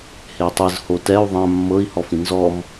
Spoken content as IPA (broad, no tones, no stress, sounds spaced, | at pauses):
h e tˤ ɯ z h o t ɛ u̯ ðˤ ã mː ɤ i̯ h ɔ f ĩ n z ɔ m